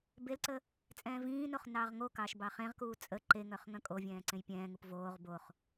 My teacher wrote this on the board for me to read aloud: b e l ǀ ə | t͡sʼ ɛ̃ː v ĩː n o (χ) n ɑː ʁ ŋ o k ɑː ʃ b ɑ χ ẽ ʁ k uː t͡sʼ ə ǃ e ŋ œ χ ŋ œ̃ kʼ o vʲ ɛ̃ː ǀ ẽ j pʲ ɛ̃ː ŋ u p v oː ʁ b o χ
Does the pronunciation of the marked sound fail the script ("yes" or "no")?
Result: no